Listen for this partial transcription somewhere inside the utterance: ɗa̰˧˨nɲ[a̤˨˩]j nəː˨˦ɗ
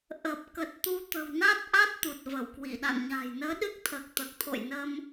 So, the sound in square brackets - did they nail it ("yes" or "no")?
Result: yes